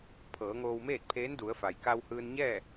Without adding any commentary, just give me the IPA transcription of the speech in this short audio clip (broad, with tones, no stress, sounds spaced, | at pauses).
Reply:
pʰ ɤː˩˧ ŋ oː˧ w m eː˥˨ t̚ pʰ eː˧˥ n d u˩˧ ə̯ f a˩ j k a˧ w h ɯː˧ n ɲ ɛː˥˨